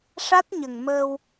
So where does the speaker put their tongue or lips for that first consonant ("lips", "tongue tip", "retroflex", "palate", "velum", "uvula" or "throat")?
retroflex